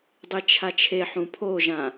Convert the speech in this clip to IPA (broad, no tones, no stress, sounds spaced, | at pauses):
dˤ i t͡ʃʰ a t͡ʃʰ e ħ ũ pʰ o ʒ ã